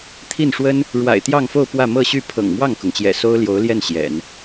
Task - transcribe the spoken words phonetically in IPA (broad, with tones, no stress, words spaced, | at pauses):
t̪ʰi˥˩nʂwə˥n | ɻwa̰˨˩ɪ̯t̪jɑ˥˧ŋfo˥˧ʊ̯ pwä˥˧mɤ˥˧ɕy˥˩ pʰɤ̰˨˩ŋmwɑ˥˩ŋkʊ˩ŋt͡ɕjɛ̰˨˩ so˥ʊ̯ljo˧˥ʊ̯ljɛ˥˩n ɕjɛ̰˨˩˦n